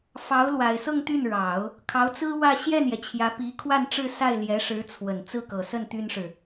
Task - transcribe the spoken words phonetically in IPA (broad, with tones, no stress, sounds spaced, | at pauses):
f ɑ˧˥ ʊ̯ l w a˨˩ ɪ̯ s ɤ˥˧ ŋ t̪ y˥˩ n ɻ ɑ˨˩˦ ʊ̯ | kʰ ɑ˧˥ ʊ̯ t͡s ɹ̩˥ w ä˥˧ ɕ j ɛ˥˩ n j ɛ˩ t͡ɕʰ j ä˧˥ p i˧˥ kʰ w a˥˧ n ʈ͡ʂ ɻ̩˥˧ s a˥˩ ɪ̯ l j ɛ˧˥ ʂ ɻ̩˧˥ t͡sʰ w ə˨˩ n t͡s ɹ̩˥˩ k ɤ˨˩ s ə˥˩ n t̪ y˥ n ʂ ɻ̩˨